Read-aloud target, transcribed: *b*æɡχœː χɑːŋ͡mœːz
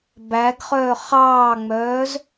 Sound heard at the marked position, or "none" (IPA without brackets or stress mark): b